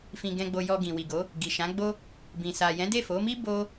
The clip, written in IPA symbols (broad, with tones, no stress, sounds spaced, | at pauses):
f ĩ˨ ɡ ɛ̃˨ ɡ͡b o˨ j ɔ˨ ɡ ĩ˨ w i˨ ɡ o˨˦ | ɡ i˨ ʃ ã˨˦ ɡ͡b o˦ | b ĩ˨ s a˨ j ɛ̃˨˦ d e˦˨ f o˨˦ m i˦ b o˦